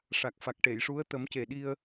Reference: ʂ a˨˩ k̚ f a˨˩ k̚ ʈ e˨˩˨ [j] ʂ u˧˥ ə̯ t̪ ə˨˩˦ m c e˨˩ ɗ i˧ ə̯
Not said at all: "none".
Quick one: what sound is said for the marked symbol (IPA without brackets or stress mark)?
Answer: j